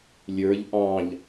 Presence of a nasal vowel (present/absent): present